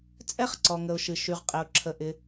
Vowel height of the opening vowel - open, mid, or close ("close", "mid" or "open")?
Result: mid